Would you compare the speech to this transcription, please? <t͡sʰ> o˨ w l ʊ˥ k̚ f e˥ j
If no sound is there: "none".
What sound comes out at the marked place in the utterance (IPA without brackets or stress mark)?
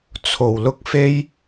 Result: t͡sʰ